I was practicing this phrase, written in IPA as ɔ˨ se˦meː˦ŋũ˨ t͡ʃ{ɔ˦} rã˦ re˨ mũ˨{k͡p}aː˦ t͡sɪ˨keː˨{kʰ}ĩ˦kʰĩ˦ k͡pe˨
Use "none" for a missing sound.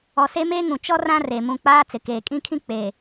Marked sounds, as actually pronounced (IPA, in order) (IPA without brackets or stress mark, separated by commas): ɔ˦, k͡p, kʼ